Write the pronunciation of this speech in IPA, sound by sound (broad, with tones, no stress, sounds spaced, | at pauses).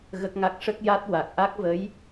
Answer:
ɣ ə˦˥ k̚ ŋ a˦˥ k̚ ʂ ə˦˥ k̚ j a˦˥ t̚ w a˨˩ k̚ ʔ a˦˥ k̚ v ə˧˥ j